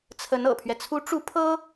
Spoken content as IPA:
t͡sʰ ə˧˥ n ɤ̰˨˩ pʰ ɥ ɛ˦ t͡sʰ u˧˥ ʈ͡ʂ u˧˥ pʰ ɤ˥

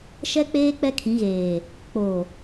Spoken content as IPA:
ʃ ɛ˦ k͡p eː˦ k͡p ɛ˦ kʰ ĩ˨˦ ɣ eː˨ | k͡p o˨

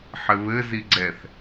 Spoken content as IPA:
ħ ɘ β ɘ z i ɡ͡ǀ ɛ θ

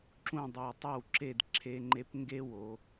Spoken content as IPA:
ǁ ũ˥˩ dˤ o˧˩ tˤ ɛ˥˩ w ǁ e˥˩ d ǁʰ e˥ ŋ͡ǃ e˥ p ŋ ɡ e˥ w o˩˧

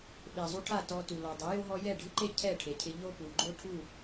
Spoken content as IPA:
ɓ e˨ zˤ u˧ ʈʰ a˦˨ t ɔ˧ t u˨ l ɔ˨ dˤ ɛ˨˦ j o˦ ɦ ɔ˦ j ɛ˦˨ ɖʱ ɪ˦ ǃ e˦ cʰ ɛ˦˨ ʈʰ e˨ cʰ ɪ˧ ʎ o˦ p u˨ ɡ͡ǃ o˦ ʈʰ u˦˨

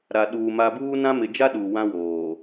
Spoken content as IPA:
ɾ a˨ ɗ uː˨ m a˨ b uː˦ n ã˦ m ɪ˨ d͡ʒ a˦ ɗ u˨ w ã˦ w oː˨

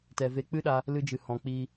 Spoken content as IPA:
t ɛ˨ v e˧ k͡p ɨ˦ ɗ a˧ | l ɨ˧ d͡ʒ ɨ˨ h ɔ̃˨ k͡p iː˧

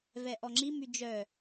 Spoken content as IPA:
v ɛ ʔ ɔ ŋ͡ǁ i m y d͡ʒ œ

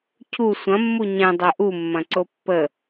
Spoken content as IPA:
cʰ u sʷ ɐ̃ mː u ɲ ɛ̃ dˤ œ ʔ u mː ɐ̃ ǀ o pː ə

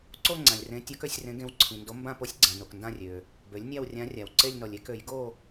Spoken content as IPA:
ǀ o˥˧ ŋ͡ǀ ã˨ lʲ r ẽ˧˥ tʲ ɔ˧˥ k ø˩˥ sʲ r ẽ˧˥ ɡ ẽ˧˥ w ǀʰ ĩ˨ n d o˧˥ m b ã˥˧ p o˧˥ sʲ ɡ͡ǀ ã˨ n o˨ k n d ã˥˧ rʲ ø˨ | b ø˩˥ lʲ nʲ a˥˧ w rʲ ã˧˥ rʲ a˨ w ǀ e˥˧ lʲ n ɔ˨ lʲ e˩˥ k ø˩˥ j ɡ o˥˧

